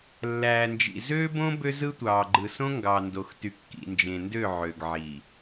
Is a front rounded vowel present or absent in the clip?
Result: present